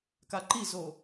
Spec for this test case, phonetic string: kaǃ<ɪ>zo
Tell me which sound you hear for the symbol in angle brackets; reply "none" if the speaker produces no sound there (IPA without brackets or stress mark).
i